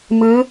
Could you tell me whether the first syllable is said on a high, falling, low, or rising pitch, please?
rising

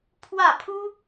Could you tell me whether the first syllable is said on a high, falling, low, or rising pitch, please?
falling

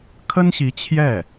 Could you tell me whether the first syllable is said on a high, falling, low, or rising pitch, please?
high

